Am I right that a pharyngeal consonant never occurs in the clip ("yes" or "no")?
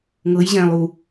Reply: yes